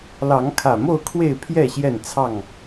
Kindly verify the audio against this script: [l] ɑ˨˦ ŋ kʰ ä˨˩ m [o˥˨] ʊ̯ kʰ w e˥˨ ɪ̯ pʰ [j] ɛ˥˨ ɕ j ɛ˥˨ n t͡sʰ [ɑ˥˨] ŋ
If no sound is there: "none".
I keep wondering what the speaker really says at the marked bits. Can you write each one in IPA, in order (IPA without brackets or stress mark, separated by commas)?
l, o˥˨, j, ɑ˥˨